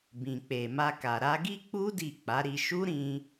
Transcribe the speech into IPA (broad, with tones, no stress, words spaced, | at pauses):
bĩ˨k͡pe˨ma˧ka˨ ɾa˧ɡi˦k͡pu˦ di˦˨k͡pa˨˦ɾi˧ ʃu˦ɾĩ˧